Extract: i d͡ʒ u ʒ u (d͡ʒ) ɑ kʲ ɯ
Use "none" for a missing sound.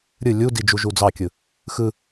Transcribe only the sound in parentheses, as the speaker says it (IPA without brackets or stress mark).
d͡z